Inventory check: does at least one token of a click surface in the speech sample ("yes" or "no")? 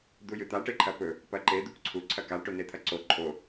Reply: yes